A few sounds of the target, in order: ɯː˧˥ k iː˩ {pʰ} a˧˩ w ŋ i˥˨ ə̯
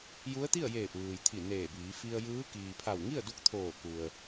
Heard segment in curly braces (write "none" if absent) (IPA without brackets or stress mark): pʰ